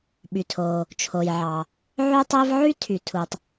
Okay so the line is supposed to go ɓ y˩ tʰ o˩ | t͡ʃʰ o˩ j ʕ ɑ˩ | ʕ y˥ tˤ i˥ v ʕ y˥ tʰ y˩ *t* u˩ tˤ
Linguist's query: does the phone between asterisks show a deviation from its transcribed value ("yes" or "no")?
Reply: yes